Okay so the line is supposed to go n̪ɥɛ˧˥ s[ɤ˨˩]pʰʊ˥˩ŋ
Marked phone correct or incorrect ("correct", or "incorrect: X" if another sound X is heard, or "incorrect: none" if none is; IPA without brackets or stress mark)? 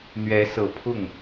correct